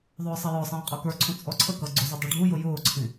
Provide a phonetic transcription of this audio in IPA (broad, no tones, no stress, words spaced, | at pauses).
ðˤʊːsˤʌjɔsˤĩː qʼɔkə˞ǀʰũ t͡sʼɔǀʰəkʌ ɡ͡ǀʊzʊ dˤuɖʱujʊ jʊːǀʰĩ